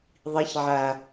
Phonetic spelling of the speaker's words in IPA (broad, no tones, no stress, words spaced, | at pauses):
ðˤiçʕa